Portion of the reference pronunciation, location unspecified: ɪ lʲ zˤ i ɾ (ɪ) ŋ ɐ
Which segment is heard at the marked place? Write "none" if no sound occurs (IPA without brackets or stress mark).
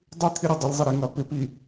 i